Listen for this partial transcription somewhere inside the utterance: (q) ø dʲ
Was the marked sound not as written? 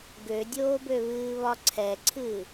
yes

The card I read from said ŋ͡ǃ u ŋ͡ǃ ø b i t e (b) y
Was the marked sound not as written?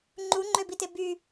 no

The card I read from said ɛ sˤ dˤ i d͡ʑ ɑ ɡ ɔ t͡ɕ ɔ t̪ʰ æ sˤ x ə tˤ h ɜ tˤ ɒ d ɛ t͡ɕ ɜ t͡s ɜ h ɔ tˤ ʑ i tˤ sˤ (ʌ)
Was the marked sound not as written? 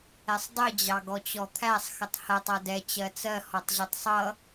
no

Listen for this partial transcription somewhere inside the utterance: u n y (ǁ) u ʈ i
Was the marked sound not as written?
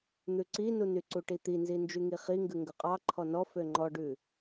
yes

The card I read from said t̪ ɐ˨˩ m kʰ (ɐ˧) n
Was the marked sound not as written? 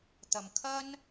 yes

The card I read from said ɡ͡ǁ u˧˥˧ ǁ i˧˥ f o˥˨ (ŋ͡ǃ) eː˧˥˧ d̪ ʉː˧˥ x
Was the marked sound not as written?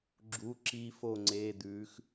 yes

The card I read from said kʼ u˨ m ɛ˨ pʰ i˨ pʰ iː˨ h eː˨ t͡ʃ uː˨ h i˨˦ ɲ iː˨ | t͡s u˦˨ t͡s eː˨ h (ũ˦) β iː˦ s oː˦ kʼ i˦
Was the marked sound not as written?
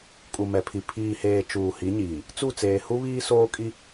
yes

